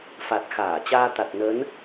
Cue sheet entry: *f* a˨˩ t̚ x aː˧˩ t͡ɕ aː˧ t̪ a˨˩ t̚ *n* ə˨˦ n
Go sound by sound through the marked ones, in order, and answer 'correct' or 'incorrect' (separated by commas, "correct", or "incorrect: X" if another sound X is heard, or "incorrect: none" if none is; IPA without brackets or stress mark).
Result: correct, correct